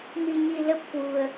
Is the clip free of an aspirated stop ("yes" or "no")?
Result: yes